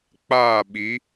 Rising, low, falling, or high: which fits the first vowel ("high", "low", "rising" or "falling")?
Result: falling